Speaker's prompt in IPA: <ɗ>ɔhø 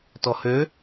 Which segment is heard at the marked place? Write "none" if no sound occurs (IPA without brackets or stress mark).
t